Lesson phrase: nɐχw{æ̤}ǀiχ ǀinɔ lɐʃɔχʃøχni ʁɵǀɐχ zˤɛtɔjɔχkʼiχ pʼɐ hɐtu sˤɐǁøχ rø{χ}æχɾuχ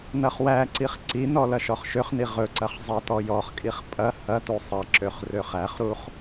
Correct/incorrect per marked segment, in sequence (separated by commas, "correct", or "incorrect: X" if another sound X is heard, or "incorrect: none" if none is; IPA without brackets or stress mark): incorrect: æ, correct